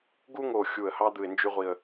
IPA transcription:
ɡu˥ŋo˧˩ xʲu˧˩ə̯hɑ˥ d̪ɯ˧˩ɪ̯nd͡ʒy˥ʁʷi˧˩ə̯

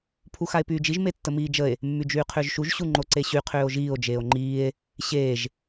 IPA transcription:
pʰuxae̯pyːd͡ʒiʒ metːəmiːd͡ʒəe̯ | mːyd͡ʒyːqʰʏːʒʃuʒ ɕuŋ͡ǃoǀeɕy qʰʏːo̯ʒiːo̯ d͡ʒeːo̯ŋ͡ǃiːe̯ | ɕeːʒ

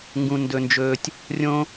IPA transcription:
ŋɡũ˧ndɵ˧nd͡ʒɵː˧tʲ | rʲõ˥

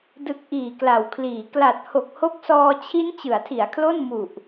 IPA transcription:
dɯ˨˩k̚ ʔiː˨˩kla˩˦wkʰliː˩˦ kla˨˩t̚ ho˨˩k̚ho˦˥k̚sɔː˧ t͡ɕʰi˦˥n t͡ɕɯ˩˦a̯tʰi˩˦a̯kʰlo˥˩n mu˨˩ʔ

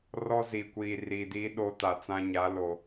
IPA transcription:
rɔ˦ziː˨kʷiː˨ riː˨diː˦ ɗo˦ta˨t͡sã˦ɲa˨˦ lo˨

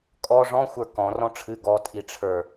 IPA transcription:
kʼɔ ʐɔ̃xʷə˞ kɔ̃ rɔ̃ʈ͡ʂʰɨ ɡɔ tʼiʈ͡ʂʰə˞

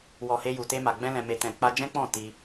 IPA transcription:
wɔ˨ he˧ju˨te˧ma˨ ɡ͡bɛ̃˧lɛ̃˨ me˨tɛ̃˨ k͡pa˧d͡ʒɛ̃˦k͡pɔ̃˦˨ ti˧

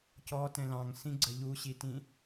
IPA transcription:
cɔtɛ̃ lɑ̃ŋsĩɡ͡ǀə ʎuɕitĩ

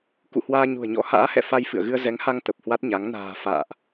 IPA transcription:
kṵ˧˨hwaː˧ɲṳ˨˩ə̯ɲɔ̰˧˥ ha̰ː˧˥hɛ̰˧˨ fa˧jfɨ̰˧˨ə̯ ɣɨ˧ə̯zɛ˨˦ŋha˧ŋ t̪ə˨˩p̚hwa˦˥t̚ɲa˨˦ŋ na̤ː˨˩ fa̰ː˧˨ʔ

